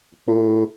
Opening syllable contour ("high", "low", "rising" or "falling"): high